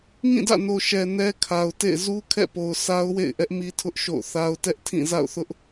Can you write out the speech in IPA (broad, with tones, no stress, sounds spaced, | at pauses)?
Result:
ŋ ĩ˦˨ d ä̰˦˨ n o˨ ʃ ɛ˨ n ɛ˦ kʰ a˨ ʊ̯ t ḛ˦˨ ɪ̯ z u˦ kʰ ɛ̰˦˨ p o˨ ʊ̯ sʰ a˦ ʊ̯ w ḛ˦˨ ɪ̯ ʔ ɛ˦ ʔ m i˦ tʰ ʊ˦ ʔ ʃ o̰˦˨ ʊ̯ θ a˦ ʊ̯ t ɛ˦ ʔ tʰ ĩ˦˨ z a̰˦˨ ʊ̯ θ ʊ˦ ʔ